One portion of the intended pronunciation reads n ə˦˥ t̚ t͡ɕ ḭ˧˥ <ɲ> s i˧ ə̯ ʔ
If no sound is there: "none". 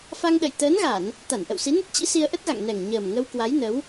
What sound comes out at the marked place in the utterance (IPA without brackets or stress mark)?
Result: none